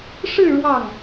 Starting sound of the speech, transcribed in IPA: ʂ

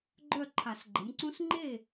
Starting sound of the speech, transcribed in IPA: ɡ͡ǃ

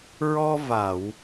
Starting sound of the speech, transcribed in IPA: ɹ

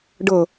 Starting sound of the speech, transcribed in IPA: ɖ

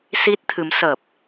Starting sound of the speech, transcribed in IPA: s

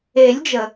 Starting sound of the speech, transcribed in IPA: e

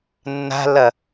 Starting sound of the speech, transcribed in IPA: nː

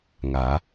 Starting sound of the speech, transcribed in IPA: ŋ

